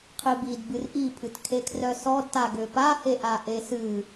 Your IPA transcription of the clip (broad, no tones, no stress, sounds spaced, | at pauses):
qʰ i b i d b ɨ r ʔ i pʰ ɨ t kʰ e kʰ r œ s ɔ d t a ɡ ø p a h e ʔ a ʔ e s ɨ